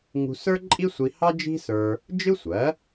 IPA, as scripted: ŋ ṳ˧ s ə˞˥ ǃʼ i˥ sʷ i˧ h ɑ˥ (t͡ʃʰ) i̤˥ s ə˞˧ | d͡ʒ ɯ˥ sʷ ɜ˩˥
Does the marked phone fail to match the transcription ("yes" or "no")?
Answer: yes